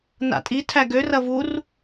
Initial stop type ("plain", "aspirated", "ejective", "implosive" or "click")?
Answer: ejective